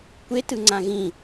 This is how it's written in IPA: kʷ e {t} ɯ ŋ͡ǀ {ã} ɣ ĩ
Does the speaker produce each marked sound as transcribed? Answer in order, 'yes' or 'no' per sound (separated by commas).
yes, yes